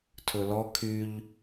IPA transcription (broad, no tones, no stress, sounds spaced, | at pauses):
tʰ ɵ l ɔ kʰ y ʎ